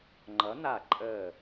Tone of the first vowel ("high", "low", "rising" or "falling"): rising